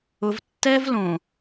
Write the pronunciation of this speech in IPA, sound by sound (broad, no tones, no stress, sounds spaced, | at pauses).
ʊ v tː ɛ v l õ